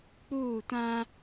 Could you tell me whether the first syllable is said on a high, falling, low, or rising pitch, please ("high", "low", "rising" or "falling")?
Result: falling